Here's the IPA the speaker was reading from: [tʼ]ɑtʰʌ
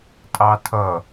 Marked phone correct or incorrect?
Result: correct